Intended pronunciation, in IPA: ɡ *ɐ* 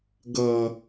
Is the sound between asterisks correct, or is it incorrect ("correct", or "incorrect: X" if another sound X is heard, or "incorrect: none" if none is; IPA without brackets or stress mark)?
correct